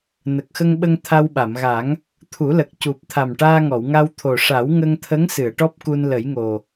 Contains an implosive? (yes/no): yes